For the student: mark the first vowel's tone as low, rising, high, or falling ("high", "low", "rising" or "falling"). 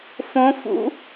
rising